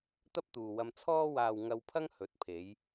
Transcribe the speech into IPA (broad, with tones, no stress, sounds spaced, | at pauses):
t̪ ɐ˥ p̚ t̪ uː˨ w ɐ˧ m t͡sʰ ɔː˧ w aː˨ w ŋ ɐ˧ w pʰ ɐ˥ ŋ h ɵ˨˥ t̚ pʰ e˨˧ j